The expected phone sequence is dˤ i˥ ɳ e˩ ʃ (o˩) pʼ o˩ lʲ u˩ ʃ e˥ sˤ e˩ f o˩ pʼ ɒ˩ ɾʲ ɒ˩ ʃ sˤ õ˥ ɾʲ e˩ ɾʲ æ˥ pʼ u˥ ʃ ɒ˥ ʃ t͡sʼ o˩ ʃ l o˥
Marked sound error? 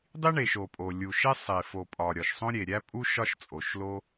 no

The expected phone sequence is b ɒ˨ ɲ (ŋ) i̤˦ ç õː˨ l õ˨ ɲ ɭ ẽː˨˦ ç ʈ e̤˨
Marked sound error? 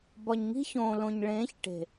no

